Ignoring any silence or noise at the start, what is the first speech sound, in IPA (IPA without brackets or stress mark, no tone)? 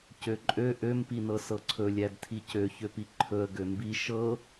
c